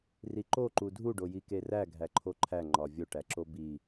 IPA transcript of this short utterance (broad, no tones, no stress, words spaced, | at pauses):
riǃo ǃudʱu ɖojikeræ ɡʱæǃʰoǃʰæ ŋ͡ǃɒvʲo ʈæǁobi